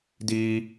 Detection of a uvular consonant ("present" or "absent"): absent